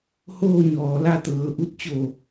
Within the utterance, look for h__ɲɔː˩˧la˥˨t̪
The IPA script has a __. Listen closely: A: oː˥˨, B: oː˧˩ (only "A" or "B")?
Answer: A